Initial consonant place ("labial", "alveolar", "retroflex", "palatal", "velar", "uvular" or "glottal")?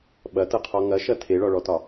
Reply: labial